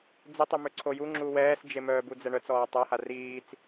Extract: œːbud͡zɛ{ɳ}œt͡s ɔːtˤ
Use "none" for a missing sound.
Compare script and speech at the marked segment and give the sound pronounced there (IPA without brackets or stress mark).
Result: ɳ